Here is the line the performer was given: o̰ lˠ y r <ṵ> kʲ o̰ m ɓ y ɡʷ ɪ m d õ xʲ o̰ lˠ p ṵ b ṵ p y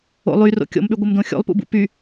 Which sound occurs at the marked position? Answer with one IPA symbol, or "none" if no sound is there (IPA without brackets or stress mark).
o̰